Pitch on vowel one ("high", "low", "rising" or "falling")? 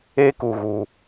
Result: high